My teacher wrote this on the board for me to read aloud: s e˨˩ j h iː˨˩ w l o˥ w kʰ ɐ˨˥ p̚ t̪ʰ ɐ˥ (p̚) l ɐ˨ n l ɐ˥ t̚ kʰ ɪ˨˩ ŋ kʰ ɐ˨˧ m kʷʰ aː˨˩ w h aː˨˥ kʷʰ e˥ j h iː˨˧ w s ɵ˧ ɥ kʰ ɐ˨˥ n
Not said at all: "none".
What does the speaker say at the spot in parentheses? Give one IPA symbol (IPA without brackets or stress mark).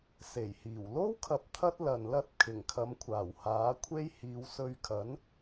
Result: t̚